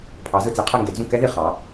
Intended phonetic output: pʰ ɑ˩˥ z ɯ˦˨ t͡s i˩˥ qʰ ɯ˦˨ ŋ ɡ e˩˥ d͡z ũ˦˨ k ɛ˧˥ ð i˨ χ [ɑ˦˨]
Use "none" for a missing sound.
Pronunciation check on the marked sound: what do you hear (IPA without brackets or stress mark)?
ɑ˩˥